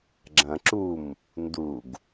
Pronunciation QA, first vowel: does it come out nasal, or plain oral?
nasal